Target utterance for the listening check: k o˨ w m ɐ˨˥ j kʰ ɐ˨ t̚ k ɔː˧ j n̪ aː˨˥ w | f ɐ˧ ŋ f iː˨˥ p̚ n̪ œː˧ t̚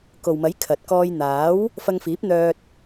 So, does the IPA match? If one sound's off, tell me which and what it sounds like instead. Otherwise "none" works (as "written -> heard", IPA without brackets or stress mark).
none